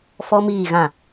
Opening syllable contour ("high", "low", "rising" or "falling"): high